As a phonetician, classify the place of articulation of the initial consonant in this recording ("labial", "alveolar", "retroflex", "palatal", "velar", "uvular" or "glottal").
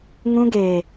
velar